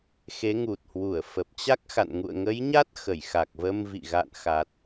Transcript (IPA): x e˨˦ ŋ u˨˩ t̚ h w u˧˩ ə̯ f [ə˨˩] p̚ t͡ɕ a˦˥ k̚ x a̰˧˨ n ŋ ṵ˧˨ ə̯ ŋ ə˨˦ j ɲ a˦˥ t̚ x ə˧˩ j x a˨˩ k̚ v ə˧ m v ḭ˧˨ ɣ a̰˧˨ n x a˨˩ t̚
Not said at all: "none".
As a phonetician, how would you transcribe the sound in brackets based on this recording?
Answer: ə˨˩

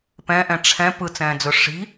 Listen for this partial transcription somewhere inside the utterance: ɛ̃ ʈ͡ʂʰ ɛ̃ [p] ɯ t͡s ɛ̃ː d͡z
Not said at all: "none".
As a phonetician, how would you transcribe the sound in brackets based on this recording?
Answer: p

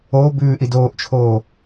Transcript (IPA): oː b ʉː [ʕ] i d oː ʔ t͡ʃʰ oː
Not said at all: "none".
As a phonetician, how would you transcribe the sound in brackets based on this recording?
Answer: ʔ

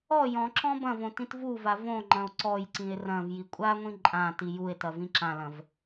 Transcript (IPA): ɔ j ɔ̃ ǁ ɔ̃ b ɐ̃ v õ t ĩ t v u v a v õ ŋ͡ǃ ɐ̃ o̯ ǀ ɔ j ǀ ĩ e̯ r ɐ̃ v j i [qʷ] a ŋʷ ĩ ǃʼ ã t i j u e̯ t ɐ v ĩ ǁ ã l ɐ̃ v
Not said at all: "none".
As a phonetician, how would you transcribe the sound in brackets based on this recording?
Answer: kʷʼ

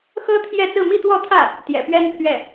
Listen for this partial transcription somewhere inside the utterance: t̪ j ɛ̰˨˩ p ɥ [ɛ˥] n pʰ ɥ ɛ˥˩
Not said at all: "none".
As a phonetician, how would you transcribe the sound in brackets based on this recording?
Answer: ɛ˥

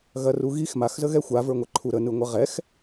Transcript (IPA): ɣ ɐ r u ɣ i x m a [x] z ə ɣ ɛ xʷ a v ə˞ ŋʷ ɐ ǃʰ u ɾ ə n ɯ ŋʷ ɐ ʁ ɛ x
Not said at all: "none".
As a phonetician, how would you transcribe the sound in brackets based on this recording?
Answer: x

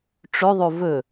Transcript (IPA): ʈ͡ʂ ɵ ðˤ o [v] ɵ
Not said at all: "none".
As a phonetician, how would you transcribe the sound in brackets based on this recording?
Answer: v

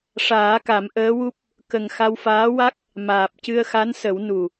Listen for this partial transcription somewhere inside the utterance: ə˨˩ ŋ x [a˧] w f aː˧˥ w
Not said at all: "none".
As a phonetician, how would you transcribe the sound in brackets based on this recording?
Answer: a˧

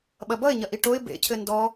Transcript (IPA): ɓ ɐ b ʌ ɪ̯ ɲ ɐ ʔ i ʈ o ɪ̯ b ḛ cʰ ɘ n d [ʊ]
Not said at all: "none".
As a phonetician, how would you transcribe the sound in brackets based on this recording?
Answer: ɔ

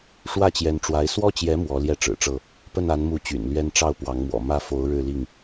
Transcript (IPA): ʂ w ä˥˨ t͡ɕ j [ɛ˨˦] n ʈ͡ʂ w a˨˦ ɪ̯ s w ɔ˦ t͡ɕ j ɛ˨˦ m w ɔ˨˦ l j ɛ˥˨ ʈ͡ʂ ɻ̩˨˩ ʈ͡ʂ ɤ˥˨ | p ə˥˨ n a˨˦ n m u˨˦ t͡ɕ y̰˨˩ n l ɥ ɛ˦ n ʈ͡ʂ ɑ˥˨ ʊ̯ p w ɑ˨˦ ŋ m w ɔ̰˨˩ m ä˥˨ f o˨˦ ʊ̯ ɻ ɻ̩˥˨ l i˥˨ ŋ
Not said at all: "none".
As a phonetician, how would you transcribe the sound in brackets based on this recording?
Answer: ɛ˨˦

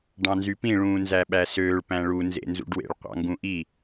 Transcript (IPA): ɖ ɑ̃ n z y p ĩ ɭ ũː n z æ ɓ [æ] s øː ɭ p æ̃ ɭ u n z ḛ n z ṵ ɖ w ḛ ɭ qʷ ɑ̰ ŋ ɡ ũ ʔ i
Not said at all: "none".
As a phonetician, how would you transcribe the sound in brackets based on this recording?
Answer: æ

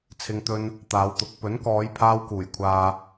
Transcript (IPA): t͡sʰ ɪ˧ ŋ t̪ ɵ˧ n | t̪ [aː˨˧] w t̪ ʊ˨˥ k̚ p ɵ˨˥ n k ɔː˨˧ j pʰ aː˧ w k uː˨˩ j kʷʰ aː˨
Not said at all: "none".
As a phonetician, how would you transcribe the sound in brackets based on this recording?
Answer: aː˨˧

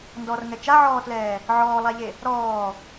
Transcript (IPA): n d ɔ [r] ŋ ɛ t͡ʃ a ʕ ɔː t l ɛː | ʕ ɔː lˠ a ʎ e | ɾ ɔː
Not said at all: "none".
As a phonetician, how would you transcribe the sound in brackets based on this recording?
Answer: r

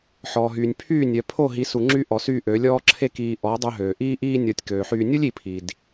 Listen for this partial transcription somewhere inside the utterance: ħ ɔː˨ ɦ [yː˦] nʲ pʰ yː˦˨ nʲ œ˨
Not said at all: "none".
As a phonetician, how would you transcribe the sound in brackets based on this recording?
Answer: yː˨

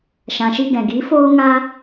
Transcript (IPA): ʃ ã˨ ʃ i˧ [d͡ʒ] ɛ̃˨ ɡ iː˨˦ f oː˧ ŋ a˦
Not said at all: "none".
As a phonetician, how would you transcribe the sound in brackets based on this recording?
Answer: ɡ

